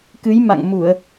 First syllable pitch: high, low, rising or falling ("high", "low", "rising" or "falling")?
rising